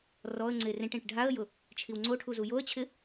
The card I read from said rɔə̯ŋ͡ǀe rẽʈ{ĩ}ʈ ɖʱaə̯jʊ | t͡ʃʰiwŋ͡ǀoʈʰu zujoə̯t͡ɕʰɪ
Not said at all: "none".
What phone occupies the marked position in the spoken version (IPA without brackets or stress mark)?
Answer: ẽ